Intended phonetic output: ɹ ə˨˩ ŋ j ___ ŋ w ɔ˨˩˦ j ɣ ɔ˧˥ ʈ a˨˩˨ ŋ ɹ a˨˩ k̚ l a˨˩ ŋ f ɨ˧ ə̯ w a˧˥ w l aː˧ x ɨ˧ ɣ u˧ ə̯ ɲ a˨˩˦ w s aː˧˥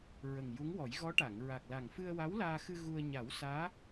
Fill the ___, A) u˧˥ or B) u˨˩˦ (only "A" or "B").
A